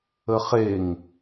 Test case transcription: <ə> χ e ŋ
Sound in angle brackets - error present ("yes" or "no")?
no